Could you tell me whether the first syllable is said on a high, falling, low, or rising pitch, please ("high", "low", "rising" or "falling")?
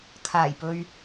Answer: low